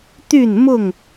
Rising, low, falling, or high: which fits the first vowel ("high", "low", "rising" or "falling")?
falling